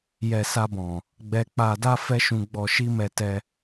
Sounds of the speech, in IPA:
j ɛ˨ s a˧ b ɔ̃˨ | ɡ͡b ɛ˧ k͡p a˧ d a˦ f ɛ˦ ʃ ũ˧ ɡ͡b ɔ˧ ʃ i˦ m ɛ˧ t ɛ˧

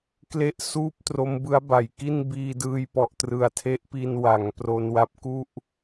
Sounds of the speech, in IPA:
k l e˦˥ ʔ s uː˦˥ p̚ t r o˦˥ m b ɯ˦˥ a̯ b a˩˦ j k i˥˩ n b iː˧ d ɯː˧ j p ɔ˨˩ ʔ t r ɯ˨˩ a̯ tʰ e˦˥ ʔ p i˧ n w a˩˦ ŋ p r o˧ n w a˦˥ p̚ k u˥˩ ʔ

